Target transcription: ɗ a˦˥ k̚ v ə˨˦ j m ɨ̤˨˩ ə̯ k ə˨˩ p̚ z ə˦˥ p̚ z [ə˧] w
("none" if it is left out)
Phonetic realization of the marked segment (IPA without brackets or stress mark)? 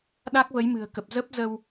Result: ə˧